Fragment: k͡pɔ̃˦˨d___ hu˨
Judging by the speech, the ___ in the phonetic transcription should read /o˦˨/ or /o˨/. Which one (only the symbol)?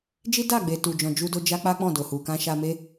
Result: o˨